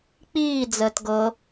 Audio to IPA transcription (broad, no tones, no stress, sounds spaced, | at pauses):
k͡p iː d͡z əː t ɡ ɤ